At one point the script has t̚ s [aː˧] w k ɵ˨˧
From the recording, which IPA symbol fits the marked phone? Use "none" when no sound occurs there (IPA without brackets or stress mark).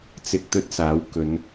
aː˨˥